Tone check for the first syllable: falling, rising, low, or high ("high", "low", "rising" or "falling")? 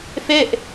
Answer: falling